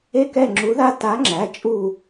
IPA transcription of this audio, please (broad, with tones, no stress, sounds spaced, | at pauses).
e˦ k ɛ˦˨ ŋ͡ǁ u˨˥ ð a˦ t a˨˥ ŋ͡ǁ æ˩˧˩ t͡ʃʼ u˦˨